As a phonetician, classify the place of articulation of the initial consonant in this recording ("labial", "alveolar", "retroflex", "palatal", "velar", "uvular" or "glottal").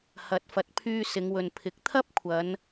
glottal